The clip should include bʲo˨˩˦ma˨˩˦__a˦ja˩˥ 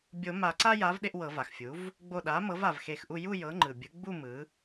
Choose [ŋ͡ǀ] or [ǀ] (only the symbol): ǀ